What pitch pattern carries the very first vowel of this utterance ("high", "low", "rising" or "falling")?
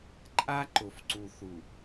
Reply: high